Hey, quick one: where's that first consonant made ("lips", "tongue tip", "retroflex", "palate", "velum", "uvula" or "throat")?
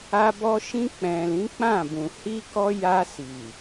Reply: lips